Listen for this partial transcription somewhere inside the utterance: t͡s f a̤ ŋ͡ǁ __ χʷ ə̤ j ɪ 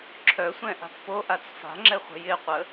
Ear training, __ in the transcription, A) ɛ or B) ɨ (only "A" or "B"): A